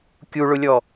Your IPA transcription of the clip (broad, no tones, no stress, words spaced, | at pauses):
kʲuɭʊlʲɔ